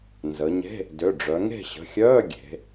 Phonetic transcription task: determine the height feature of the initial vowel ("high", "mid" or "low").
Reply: mid